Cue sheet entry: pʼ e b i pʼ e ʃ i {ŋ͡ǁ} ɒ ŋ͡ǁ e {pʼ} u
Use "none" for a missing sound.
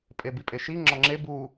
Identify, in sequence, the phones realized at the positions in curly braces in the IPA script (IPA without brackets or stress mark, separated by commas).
ŋ͡ǁ, b